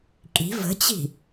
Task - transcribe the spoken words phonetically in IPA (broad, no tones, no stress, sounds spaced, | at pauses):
kʼ i̤ v ə̤ t͡ɕ i̤